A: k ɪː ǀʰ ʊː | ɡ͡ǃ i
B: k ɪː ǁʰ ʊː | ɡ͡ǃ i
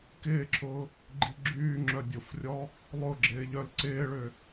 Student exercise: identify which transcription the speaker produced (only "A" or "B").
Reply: B